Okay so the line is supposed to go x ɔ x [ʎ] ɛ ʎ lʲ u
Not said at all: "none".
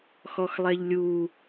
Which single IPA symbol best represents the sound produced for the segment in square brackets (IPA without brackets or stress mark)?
lˠ